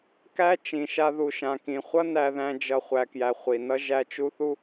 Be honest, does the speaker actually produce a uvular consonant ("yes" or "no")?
yes